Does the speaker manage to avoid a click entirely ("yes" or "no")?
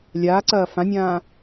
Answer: no